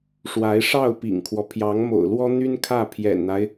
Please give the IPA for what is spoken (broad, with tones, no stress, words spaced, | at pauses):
ʂwa˧˥ɪ̯ ʂɑ˥˩ʊ̯ pḭ˨˩ŋkʰwɔ˦ pʰjɑ˧˥ŋmo̰˨˩ʊ̯lwɔ˥ n̪y˥n kʰä˥˩ pʰjɛ̰˨˩nn̪a˦ɪ̯